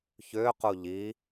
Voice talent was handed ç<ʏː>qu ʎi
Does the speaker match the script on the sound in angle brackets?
yes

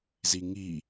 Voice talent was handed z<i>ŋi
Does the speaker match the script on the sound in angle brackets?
yes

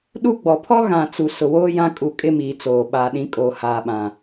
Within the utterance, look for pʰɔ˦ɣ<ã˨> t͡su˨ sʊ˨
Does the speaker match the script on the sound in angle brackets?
yes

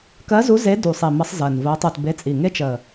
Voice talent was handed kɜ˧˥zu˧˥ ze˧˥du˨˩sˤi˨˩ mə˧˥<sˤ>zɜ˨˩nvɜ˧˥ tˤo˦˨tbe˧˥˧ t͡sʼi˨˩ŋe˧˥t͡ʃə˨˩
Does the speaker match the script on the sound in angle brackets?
yes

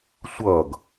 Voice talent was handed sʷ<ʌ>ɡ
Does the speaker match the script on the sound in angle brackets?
yes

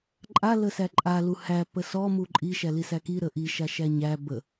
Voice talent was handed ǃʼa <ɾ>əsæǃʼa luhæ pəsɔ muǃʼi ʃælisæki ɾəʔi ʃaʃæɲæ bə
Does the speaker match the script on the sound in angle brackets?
no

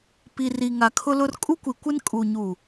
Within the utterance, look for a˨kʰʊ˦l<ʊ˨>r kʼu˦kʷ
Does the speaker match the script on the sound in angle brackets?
no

